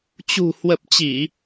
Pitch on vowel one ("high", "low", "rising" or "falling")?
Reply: low